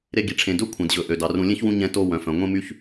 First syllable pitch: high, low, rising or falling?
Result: high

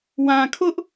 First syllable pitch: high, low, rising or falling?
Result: low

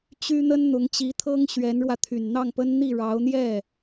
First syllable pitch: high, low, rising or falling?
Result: high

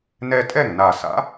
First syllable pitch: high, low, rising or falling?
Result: high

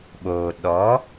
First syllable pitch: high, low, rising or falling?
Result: low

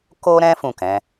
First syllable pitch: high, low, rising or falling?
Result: high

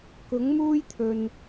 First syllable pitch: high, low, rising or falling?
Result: rising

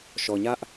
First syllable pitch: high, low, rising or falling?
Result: low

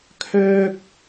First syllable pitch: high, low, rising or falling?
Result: high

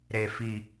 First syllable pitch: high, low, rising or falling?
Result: low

